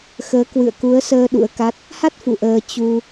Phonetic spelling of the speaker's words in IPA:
x əː˨˦ k w ɨ̰˧˨ ə̯ k u˨˦ ə̯ s əː˧ ɗ ṵ˧˥ ə̯ k a˦˥ t̚ | h a˦˥ t̚ f ṵ˧˨ ʔ əː˧ t͡ɕ u˧

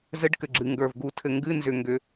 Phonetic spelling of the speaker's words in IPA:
z ɘ˧˥˧ ɖ k ɘ˩ ɡ͡ǁ ɨ˩ ŋ ɡ ə˞˩ v ɡ u˨˩˦ tʰ ɘ˩ ŋ ɡ ɨ˧˥˧ n z ʏ˩ ŋ ɡ ʏ˩

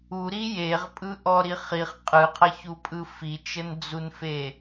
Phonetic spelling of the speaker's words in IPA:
u ɾ i j e ʁ pʼ ɯ ʔ ɔ ɾ i χ i χ qʼ ɯ qʰ ə ç u pʼ ɯ f i t͡ʃ ə n d͡z u n f e

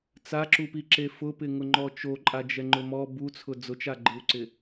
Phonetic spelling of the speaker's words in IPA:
t͡s a ǁ u p i ǁ e f ʊ p ɪ ŋ ʊ ŋ͡ǃ ɔ t͡ʃ o ǃʼ a d͡ʒ ɛ ŋ͡ǃ ʊ m ɔ b u t͡sʰ ʊ d͡z ʊ t͡ʃ a ɡ͡ǃ ɪ u̯ ǀ ɪ

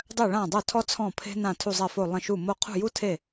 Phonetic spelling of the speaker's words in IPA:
dˤ œ˥˩ ɭ ã˥˩ dˤ o˥˩ tʰ ɔ˥ t͡sʰ ɔ̃˥˩ pʰ e̤˥ n ã˥˩ tʰ u˥˩ zˤ ɛ˥˩ f o˥˩ lˠ ə̃˥˩ ʃ u˥˩ m o˥ qʰ ṳ˥˩ j u˥ tʰ e˥˩

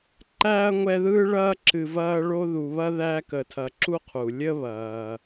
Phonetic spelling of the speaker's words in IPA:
ǃ æː˥ ɐ̯ ŋʷ ɛ˦ ð ɯː˥ ɭ ɐː˥ ǁ ɨ˨ v ɐː˦ ɭ o˦ ð u˨ β ɐ˥ ð æ˦ k ə˨ tʰ ɐ˨ ǁ u˥ qʰ u˩ lʲ ə˥ β ɐː˩

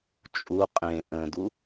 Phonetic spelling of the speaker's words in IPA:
t͡ʃʼ u qʼ ẽ ʔ ə̃ d u

